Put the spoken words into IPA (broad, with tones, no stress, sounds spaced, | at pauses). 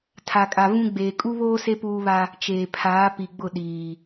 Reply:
tʰ a˨ kʼ a˨ v ũ˦ ɡ͡b eː˨ kʼ u˦ β oː˦ s e˦ p uː˦ β a˦ | t͡ʃ eː˨ pʰ aː˨˦ p i˨ ɡ͡b ʊ˦˨ ɗ iː˨